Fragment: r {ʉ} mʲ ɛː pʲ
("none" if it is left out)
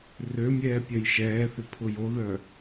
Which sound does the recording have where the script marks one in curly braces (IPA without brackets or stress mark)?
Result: ø